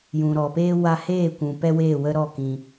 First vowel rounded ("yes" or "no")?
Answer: yes